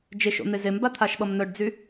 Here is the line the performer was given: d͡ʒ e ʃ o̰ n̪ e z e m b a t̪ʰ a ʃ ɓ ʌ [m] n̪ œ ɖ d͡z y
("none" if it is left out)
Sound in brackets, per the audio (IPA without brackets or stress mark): m